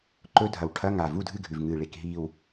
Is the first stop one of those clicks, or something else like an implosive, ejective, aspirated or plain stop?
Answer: click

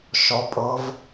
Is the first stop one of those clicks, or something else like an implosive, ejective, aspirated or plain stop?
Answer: ejective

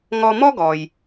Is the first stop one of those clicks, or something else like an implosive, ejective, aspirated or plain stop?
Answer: plain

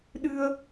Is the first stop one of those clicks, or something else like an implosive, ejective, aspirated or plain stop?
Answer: implosive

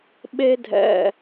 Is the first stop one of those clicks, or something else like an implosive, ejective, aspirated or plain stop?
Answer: implosive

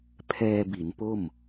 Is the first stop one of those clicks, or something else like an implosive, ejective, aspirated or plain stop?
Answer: aspirated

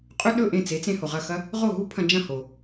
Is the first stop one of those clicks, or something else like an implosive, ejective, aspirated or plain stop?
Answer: ejective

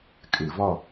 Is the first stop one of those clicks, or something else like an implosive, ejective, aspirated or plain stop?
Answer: ejective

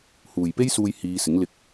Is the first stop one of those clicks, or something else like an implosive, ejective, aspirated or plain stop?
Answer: plain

